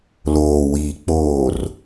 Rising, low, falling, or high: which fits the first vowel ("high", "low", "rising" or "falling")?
low